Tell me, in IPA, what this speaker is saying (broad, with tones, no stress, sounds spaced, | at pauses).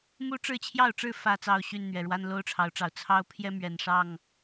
m u˦ ʈ͡ʂ ɻ̩˥˨ t͡ɕʰ j ɑ˥˨ ʊ̯ ʈ͡ʂ ɻ̩˥˨ f ä˥˨ t͡s ɑ˥˨ ʊ̯ ɕ y˥˨ n n̪ ɥ ɛ˨˩ ɻ w a˦ n l o˦ ʊ̯ ʈ͡ʂʰ ɑ˨˦ ʊ̯ ʈ͡ʂ ɑ˨˩ ʊ̯ t͡sʰ ɑ˦ ʊ̯ pʰ j ɛ˦ m ɥ ɛ˨˩ n ʂ ɑ˥˨ ŋ